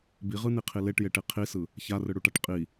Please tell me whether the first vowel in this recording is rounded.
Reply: no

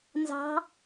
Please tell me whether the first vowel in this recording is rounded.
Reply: no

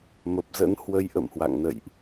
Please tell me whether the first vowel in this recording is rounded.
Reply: no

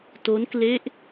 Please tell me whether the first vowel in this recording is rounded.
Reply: yes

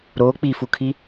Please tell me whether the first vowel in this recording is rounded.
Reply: yes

